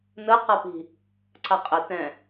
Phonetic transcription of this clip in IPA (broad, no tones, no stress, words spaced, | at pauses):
nəqapi̤ | ǀʰaqʼɛ tɛ̃